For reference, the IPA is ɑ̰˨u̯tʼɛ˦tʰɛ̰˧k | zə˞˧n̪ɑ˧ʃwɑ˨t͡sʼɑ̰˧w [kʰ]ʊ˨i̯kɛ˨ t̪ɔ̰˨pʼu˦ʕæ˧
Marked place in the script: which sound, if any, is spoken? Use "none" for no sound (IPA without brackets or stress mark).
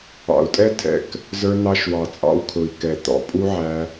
kʰ